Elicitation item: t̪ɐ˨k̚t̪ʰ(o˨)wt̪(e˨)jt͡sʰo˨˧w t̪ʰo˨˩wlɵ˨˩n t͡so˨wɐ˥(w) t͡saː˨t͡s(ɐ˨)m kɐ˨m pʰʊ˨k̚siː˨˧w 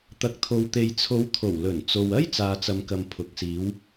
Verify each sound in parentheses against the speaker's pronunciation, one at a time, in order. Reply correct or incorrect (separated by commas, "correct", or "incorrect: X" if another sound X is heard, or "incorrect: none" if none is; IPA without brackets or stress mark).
correct, correct, incorrect: j, correct